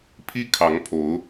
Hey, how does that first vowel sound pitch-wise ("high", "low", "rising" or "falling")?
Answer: high